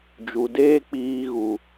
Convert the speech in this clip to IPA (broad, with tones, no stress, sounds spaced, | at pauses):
d͡ʒ u˨ d eː˦ k͡p iː˧ ɣ u˨